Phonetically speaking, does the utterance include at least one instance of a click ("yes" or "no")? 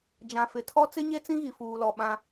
no